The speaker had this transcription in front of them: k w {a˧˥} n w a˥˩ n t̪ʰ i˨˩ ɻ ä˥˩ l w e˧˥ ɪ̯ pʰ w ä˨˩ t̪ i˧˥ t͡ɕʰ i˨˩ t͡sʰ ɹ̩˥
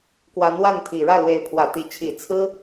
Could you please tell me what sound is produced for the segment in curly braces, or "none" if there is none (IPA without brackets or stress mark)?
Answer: a˧˥